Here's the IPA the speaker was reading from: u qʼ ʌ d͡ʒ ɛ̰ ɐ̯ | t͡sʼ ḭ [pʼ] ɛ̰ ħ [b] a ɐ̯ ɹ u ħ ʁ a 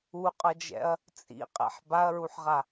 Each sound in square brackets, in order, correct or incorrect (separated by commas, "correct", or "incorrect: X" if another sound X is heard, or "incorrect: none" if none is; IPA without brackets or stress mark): incorrect: qʼ, correct